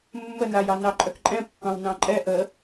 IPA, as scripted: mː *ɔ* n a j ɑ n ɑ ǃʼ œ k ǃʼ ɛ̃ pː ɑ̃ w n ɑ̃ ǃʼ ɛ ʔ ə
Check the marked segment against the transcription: incorrect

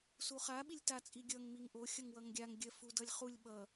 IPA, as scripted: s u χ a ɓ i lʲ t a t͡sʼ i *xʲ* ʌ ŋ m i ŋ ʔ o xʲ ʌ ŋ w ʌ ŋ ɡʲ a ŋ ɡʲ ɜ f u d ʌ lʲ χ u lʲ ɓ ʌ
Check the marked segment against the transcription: incorrect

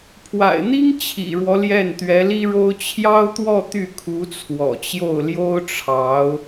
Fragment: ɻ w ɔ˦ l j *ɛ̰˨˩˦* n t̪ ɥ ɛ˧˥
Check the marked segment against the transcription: incorrect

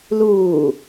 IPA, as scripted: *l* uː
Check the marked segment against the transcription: correct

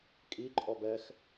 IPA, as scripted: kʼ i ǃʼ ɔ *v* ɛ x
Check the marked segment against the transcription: incorrect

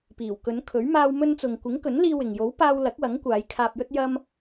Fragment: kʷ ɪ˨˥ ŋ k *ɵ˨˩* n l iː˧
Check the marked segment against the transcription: incorrect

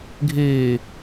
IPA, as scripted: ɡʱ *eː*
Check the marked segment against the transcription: correct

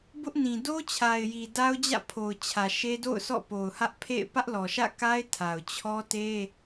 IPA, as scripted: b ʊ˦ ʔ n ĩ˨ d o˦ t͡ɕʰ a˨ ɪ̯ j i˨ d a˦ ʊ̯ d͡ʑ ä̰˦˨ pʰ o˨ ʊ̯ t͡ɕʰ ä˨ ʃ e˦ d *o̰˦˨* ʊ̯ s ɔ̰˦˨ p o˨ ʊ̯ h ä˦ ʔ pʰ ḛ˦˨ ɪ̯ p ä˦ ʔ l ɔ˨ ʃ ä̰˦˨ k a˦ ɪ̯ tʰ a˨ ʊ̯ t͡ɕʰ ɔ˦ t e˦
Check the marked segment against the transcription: correct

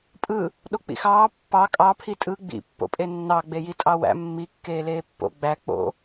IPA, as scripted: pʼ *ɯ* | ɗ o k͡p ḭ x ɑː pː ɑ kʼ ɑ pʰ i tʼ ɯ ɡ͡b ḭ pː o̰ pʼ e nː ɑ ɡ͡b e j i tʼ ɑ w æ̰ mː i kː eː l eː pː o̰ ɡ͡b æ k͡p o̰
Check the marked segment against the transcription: correct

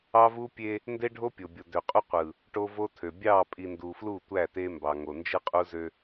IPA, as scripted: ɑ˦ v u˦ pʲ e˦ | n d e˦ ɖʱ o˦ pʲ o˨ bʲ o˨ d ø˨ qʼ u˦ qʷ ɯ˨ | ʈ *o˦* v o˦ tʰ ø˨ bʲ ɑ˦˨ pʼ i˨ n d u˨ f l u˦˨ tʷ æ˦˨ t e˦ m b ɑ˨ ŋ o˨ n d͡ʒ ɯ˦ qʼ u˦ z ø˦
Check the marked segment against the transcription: correct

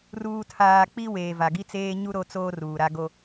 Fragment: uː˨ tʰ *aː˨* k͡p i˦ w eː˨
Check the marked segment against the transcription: correct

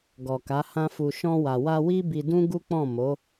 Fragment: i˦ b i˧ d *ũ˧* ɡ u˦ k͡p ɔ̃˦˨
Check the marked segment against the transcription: incorrect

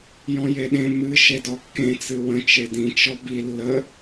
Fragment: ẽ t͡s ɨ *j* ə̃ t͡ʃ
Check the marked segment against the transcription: incorrect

